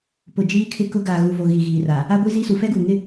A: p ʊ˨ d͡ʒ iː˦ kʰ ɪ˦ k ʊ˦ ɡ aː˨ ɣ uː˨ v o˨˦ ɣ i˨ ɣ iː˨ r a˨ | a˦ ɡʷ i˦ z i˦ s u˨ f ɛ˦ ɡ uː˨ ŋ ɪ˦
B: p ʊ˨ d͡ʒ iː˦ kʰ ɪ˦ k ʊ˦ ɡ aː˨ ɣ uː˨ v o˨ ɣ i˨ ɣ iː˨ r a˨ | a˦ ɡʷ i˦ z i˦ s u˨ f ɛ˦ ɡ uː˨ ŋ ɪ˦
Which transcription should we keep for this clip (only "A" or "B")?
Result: B